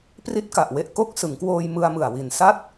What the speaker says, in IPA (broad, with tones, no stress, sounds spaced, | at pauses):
p r i˥˩ t̚ k a˨˩ ʔ w e˦˥ ʔ k o˥˩ k̚ s ɯ˩˦ ŋ k w oː˧ j m ɯ˧ a̯ m ɯ˨˩ a̯ w i˨˩ n s a˥˩ t̚